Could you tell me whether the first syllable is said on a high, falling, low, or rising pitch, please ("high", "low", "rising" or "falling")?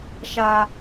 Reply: high